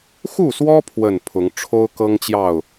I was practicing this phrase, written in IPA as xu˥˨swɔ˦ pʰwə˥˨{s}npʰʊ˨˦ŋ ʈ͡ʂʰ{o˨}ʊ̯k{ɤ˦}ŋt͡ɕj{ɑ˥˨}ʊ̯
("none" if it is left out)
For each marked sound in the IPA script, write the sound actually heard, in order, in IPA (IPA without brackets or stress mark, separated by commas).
none, o˦, ɤ˦, ɑ˥˨